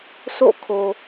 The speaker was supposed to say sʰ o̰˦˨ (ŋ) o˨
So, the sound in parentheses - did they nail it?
no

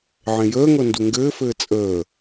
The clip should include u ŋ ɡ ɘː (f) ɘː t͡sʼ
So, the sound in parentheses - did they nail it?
yes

